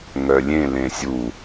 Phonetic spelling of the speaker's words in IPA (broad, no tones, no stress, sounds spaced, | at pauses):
ŋ œ lʲ ẽ l ẽ sʲ u